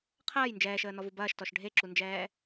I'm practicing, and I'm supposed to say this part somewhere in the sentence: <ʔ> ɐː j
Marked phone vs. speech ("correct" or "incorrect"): incorrect